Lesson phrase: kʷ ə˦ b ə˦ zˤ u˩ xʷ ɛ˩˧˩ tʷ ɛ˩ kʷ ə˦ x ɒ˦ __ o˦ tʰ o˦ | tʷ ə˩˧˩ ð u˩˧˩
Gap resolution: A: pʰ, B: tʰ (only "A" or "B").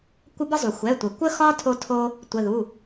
B